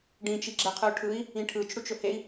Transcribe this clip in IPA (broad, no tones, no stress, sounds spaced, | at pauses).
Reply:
ɖ ĩ t͡ʃ i ɡ͡ǁ ɛ qʰ ɯ u̯ ʈʰ ɯ i̯ | ĩ ʈʰ ɯ t͡ʃ ɽ u t͡ʃ ɵ h e i̯